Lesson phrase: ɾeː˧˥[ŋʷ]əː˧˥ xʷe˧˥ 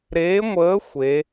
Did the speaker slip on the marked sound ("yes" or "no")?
no